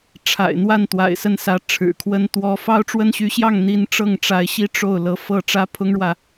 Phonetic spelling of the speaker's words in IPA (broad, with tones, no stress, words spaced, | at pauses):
ʈ͡ʂʰa̰˨˩ɪ̯n̪wa˥˩n t̪wa̰˨˩ɪ̯sə˥˩nsä˧˥ ʈ͡ʂʰɻ̩˨˩kʰwə˥n t̪wɔ˥ fɑ˥ʊ̯ʈ͡ʂwə˥n ɕy˧˥ɕjɑ˥˩ŋ n̪i˥n ʈ͡ʂɤ˥˩ŋʈ͡ʂa˧˥ɪ̯ ɕi˥ ʈ͡ʂo˥˩ʊ̯ lɤ˧˥fɤ˥˩ ʈ͡ʂä˥pʰʊ˥ŋɻwä˨